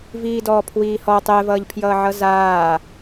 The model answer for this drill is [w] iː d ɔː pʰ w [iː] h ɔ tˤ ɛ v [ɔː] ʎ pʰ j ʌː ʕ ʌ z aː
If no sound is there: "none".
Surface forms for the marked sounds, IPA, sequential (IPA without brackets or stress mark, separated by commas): v, iː, ʌː